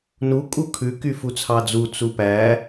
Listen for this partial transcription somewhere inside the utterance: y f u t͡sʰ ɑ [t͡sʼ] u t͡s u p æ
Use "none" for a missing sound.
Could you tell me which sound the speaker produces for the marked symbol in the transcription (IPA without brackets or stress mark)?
d͡z